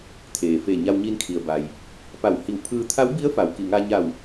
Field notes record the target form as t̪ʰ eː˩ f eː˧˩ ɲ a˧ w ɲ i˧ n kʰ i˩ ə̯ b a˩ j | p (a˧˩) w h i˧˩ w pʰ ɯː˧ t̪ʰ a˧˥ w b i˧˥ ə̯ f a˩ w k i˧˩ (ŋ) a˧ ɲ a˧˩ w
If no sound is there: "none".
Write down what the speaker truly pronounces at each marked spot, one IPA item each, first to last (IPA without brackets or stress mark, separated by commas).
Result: a˧˩, ŋ